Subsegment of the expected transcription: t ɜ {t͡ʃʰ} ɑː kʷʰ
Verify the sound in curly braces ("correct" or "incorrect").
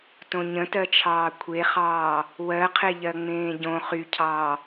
correct